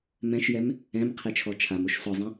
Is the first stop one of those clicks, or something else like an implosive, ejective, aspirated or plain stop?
aspirated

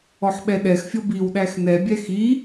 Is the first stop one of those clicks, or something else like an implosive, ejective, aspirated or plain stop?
implosive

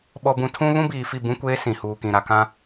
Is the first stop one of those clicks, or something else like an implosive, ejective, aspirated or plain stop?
implosive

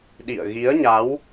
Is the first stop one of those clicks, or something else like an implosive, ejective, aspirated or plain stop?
implosive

